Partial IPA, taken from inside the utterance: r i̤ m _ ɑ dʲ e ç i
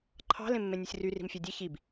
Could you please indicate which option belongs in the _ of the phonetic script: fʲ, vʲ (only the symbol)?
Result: fʲ